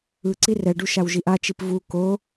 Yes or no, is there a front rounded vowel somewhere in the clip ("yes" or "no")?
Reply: no